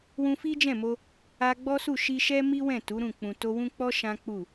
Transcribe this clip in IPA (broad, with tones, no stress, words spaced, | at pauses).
wũ˧fi˦d͡ʒɛ̃˦˨mo˧ | a˧ɡ͡bɔ˦su˦˨ ʃi˧ʃɛ˦ mi˦wɛ̃˦˨ tu˨˦ɾũ˦˨ k͡pũ˨to˧wũ˦k͡pɔ˦ ʃã˦k͡pu˦˨